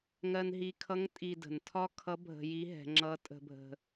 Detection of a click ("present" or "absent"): present